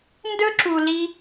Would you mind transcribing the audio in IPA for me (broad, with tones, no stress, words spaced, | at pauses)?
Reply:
ndɵ˦ǁu˨li˧